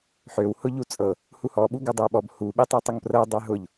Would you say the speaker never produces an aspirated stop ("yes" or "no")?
yes